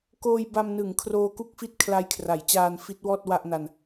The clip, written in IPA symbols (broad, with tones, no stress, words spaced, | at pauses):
koː˧jba˧mnɯ˩˦ŋ kʰroː˧ku˥˩k̚fi˥˩t̚ kʰla˧jkʰra˩˦j t͡ɕaː˧nfi˦˥t̚wɔː˥˩t̚ wa˥˩ʔna˧n